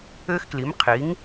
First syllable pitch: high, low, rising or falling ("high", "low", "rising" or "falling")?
high